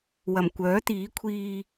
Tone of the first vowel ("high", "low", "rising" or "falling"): low